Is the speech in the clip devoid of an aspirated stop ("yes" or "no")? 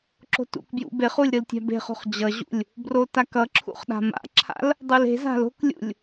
no